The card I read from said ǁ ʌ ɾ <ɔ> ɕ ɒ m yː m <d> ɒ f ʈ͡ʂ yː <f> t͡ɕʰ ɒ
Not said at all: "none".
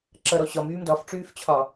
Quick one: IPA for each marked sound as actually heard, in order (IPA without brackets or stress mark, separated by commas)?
ɔ, d, f